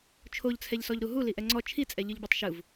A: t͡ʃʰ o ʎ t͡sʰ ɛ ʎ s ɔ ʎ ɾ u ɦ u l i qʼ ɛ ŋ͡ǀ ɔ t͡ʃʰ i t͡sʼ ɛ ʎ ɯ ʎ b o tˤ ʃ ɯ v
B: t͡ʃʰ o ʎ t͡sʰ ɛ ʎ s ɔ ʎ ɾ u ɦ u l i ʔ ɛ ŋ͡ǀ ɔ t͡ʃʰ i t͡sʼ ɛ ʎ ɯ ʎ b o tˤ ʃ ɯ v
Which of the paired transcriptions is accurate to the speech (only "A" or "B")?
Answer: B